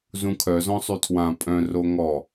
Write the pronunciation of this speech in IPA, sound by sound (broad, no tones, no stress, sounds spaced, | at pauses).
z ũ kʰ œ z ɔ̃ sˤ y tʰ w ã pʼ œ̃ r o ŋ ɔ